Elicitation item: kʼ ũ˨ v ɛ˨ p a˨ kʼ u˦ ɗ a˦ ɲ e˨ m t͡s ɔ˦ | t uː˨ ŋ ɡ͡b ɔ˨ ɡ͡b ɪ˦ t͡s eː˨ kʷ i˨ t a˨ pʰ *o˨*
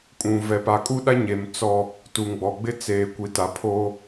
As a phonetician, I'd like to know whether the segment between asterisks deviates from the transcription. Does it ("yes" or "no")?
yes